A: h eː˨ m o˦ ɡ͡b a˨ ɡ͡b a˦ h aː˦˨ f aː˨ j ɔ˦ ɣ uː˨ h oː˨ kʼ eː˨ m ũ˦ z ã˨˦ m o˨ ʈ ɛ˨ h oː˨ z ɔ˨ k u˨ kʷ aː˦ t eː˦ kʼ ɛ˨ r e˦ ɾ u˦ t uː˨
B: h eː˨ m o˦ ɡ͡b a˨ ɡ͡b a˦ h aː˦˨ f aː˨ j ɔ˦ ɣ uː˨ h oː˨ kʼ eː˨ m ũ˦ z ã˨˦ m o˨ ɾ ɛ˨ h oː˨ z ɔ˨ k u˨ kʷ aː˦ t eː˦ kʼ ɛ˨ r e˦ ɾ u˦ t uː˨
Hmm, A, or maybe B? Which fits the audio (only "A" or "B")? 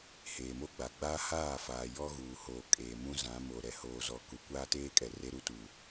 B